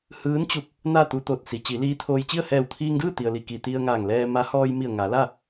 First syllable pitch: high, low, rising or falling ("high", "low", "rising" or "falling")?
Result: rising